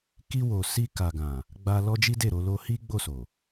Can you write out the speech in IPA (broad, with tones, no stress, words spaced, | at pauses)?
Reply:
ki˧ wo˨si˧ ka˨ɡã˨ | ɡ͡ba˧ lɔ˦d͡ʒi˦de˦˨ɾo˨˦ lo˧hi˦ ɡ͡bo˦˨so˨